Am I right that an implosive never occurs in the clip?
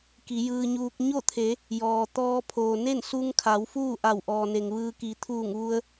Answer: yes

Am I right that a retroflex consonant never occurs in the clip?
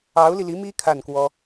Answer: yes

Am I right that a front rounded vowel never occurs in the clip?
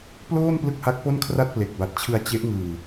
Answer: yes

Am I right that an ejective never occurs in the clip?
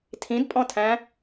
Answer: no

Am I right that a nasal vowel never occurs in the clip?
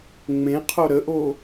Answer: no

